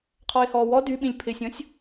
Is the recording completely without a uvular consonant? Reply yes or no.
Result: no